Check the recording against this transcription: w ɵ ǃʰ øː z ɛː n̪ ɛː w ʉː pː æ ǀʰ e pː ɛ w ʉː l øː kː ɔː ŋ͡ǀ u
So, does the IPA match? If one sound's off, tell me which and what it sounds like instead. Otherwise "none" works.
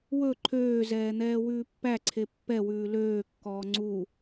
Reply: none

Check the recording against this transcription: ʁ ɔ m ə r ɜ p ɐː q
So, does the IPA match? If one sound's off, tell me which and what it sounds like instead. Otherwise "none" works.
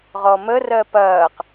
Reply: none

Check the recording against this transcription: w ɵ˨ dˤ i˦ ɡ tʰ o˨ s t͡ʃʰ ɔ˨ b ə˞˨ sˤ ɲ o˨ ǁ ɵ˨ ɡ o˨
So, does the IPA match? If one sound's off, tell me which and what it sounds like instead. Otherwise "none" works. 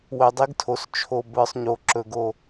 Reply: ɔ˨ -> o˨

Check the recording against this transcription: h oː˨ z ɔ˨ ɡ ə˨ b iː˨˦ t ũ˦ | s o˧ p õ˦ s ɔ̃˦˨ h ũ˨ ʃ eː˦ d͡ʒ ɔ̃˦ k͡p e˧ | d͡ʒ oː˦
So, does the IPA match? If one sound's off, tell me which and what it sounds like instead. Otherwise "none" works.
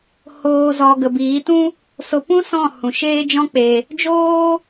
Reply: õ˦ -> ũ˦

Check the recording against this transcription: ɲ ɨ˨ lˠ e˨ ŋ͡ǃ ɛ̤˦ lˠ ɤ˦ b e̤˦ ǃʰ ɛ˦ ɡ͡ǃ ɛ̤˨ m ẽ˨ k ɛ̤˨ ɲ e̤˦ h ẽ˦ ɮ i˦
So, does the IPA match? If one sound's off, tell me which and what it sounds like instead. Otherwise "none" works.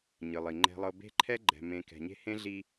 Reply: e˨ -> i˨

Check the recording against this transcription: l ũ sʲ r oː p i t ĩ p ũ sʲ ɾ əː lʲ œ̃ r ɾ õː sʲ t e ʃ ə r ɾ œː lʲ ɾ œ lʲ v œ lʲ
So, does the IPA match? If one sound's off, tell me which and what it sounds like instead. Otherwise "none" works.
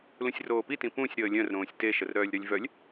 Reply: none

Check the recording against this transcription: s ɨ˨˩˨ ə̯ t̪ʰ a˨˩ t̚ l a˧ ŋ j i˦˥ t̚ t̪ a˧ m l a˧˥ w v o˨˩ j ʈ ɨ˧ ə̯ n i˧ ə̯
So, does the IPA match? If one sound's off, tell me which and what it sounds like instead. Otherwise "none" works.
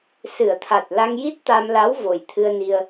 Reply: ʈ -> t̪ʰ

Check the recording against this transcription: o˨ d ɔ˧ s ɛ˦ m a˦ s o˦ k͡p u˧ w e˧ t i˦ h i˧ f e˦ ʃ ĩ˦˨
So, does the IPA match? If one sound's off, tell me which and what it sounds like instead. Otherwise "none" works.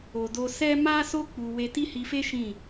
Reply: ɔ˧ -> o˧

